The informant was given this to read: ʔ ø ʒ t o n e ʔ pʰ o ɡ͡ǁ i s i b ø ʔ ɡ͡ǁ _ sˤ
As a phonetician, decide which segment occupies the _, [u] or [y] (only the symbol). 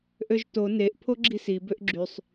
y